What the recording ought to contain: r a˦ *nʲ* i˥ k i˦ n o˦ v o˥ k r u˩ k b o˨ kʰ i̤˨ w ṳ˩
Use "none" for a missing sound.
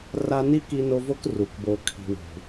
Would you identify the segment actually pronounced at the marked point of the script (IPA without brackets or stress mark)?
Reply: n